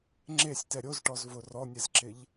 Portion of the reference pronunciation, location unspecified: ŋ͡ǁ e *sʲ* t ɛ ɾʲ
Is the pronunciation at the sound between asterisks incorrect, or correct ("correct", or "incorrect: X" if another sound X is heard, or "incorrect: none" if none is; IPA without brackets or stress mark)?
correct